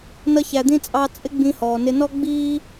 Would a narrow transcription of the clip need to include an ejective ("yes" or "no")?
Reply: yes